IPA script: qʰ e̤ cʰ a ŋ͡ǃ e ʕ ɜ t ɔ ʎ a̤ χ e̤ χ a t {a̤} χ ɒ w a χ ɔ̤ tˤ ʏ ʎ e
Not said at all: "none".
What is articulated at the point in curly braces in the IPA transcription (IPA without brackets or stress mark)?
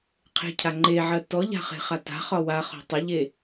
a̤